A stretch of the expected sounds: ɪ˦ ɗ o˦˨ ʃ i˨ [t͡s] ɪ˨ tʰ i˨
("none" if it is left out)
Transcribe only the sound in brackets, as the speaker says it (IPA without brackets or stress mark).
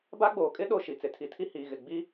t͡s